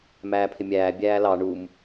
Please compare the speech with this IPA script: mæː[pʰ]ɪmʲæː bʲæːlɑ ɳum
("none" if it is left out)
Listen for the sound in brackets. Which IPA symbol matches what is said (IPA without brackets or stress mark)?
pʰ